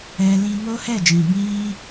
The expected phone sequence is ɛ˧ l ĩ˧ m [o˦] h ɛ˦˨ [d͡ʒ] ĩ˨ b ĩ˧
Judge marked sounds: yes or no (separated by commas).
yes, yes